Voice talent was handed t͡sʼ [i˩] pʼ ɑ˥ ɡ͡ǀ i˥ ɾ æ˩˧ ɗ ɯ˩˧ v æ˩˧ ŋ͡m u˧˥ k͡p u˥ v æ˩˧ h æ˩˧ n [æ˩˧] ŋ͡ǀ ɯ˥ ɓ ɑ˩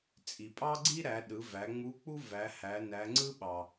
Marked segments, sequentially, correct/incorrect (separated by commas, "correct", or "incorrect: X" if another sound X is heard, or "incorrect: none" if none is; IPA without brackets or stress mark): correct, correct